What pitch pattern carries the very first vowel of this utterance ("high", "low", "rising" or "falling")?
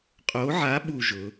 rising